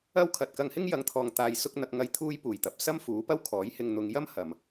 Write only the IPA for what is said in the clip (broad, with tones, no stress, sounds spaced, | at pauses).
ɐ˥ w kʰ ɐ˨ t̚ k ɐ˧ ŋ h ɪ˥ ŋ j ɐ˨˥ ŋ t̪ʰ ɔː˨ ŋ t̪ aː˨ j s ʊ˧ k̚ n̪ ɐ˨ k̚ ŋ ɐ˧ j t̪ʰ uː˧ j p uː˨˩ j t̪ ɐ˨ p̚ s ɐ˥ m f uː˨˥ p ɐ˥ w kʰ ɔː˨˥ j h ɪ˨ ŋ n̪ ʊ˨ ŋ j ɐ˥ m h ɐ˨ m